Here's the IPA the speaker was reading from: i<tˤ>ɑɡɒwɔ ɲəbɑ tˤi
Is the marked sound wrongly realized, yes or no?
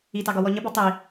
yes